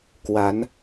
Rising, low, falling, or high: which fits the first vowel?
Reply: rising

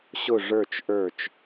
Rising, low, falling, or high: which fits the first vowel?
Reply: falling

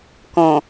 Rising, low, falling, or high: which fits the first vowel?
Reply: low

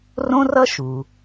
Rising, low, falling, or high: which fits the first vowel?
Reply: high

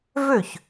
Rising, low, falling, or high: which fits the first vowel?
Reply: falling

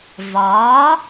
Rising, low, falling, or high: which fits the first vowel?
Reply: rising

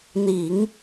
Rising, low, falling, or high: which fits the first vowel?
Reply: low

